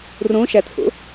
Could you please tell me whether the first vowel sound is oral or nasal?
nasal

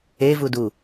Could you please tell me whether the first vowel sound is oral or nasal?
oral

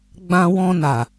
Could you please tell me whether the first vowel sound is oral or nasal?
nasal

